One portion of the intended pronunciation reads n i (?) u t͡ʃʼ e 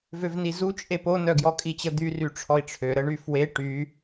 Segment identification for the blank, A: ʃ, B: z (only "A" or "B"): B